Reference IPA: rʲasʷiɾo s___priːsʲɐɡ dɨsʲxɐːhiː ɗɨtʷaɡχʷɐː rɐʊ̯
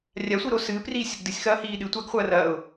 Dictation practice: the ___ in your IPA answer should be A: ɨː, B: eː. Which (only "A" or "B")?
A